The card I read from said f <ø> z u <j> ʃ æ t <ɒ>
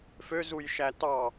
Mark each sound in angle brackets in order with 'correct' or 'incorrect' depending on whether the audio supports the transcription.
correct, correct, incorrect

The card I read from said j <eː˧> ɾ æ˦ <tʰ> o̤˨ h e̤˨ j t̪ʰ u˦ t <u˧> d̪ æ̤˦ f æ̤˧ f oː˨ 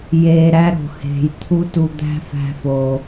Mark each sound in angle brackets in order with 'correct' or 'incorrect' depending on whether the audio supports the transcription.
correct, incorrect, correct

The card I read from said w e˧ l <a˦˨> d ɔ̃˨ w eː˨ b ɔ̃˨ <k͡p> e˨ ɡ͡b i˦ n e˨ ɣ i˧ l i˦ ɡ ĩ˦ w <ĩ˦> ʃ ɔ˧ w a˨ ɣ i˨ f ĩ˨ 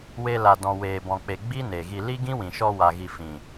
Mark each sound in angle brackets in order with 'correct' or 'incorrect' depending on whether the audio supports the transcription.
incorrect, correct, incorrect

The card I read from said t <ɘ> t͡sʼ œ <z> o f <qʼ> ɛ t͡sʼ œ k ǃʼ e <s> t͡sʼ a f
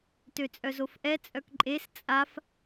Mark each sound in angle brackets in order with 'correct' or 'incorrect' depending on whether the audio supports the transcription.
incorrect, correct, incorrect, correct

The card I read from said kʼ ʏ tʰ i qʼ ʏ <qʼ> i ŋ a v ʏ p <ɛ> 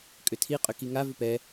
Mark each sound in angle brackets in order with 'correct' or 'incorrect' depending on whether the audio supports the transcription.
incorrect, correct

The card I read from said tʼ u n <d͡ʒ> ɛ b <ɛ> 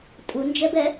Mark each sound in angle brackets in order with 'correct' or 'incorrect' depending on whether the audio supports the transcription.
correct, correct

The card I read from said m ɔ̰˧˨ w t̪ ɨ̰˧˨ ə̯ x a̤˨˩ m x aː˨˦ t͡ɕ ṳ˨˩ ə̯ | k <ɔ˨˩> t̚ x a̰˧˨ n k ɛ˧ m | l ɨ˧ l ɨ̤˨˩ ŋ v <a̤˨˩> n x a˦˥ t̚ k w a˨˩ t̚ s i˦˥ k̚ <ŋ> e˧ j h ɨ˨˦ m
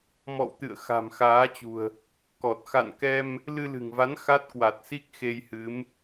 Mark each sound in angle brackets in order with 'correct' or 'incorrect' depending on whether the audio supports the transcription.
correct, incorrect, incorrect

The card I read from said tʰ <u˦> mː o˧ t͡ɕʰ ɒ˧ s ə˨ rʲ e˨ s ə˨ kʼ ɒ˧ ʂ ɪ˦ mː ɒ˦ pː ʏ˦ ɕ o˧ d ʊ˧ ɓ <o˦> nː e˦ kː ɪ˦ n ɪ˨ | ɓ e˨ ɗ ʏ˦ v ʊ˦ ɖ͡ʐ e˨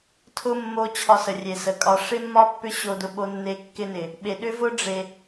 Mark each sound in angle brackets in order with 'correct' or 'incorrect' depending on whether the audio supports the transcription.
incorrect, correct

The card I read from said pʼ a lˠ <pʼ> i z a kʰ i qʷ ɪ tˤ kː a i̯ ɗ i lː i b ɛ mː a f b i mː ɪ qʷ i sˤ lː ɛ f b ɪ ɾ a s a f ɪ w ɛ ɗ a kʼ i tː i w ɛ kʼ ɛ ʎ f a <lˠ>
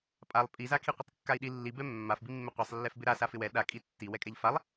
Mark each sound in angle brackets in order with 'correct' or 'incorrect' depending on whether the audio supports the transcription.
correct, correct

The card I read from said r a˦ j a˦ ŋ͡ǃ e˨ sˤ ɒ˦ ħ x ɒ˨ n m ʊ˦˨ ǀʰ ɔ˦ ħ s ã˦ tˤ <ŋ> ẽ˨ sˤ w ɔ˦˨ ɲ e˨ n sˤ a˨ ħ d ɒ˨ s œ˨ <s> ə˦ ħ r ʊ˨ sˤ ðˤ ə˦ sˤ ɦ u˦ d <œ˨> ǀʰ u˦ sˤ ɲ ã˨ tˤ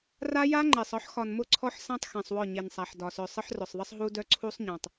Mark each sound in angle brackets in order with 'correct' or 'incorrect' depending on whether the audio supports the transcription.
incorrect, incorrect, incorrect

